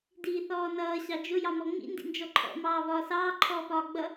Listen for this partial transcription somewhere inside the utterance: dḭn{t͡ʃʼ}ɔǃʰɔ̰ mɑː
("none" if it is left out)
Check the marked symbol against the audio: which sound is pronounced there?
d͡ʒ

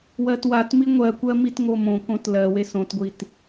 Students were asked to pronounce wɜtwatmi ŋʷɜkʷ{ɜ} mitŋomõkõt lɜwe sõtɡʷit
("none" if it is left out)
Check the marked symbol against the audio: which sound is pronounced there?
ɜ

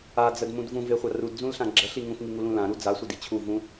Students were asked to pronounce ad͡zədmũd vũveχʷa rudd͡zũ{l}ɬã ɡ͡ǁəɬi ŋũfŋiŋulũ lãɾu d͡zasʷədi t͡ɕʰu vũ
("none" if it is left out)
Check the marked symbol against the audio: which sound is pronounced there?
l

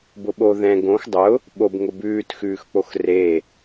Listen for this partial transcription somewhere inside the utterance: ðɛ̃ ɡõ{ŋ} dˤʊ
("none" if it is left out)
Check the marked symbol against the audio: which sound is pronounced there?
x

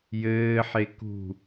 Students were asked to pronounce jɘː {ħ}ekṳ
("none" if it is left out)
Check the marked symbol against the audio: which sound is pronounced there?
ħ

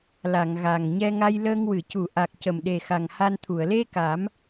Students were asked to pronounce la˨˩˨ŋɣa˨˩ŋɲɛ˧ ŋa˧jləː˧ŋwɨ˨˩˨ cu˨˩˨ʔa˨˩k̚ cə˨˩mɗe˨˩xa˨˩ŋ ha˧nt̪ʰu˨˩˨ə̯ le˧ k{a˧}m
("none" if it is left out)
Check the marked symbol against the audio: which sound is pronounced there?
a˨˩˦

